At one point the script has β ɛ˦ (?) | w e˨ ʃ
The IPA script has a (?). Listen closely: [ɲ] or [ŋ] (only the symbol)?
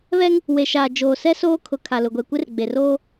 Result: ŋ